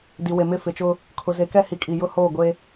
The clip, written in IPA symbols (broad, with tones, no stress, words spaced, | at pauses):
di˨we˨mɪ˦˨ fɪ˨t͡ʃʊ˦ | kʰʊ˨ze˨˦kɛ˦ hi˨kʼi˨ jʊ˦hoː˦˨ ɡʷe˦